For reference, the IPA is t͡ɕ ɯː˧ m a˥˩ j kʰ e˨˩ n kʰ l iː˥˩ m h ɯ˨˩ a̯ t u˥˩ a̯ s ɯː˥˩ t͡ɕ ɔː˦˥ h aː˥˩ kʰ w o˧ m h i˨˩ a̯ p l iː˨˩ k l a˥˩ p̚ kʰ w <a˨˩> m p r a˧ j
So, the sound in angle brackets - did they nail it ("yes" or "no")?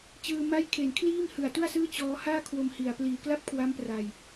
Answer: no